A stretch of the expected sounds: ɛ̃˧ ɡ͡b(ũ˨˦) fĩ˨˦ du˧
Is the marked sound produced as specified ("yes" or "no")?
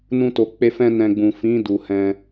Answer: no